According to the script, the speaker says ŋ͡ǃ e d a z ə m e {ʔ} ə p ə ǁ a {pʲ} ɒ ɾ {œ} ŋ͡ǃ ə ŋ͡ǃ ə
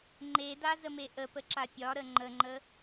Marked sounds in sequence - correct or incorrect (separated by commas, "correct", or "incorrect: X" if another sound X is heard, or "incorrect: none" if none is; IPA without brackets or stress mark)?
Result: correct, correct, incorrect: ə